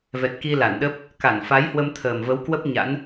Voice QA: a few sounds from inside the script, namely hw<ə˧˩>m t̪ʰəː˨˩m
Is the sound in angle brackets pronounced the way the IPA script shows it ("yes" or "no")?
no